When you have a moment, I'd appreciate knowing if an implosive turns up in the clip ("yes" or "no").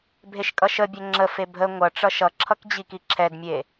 no